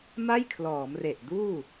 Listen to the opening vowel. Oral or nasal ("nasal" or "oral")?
oral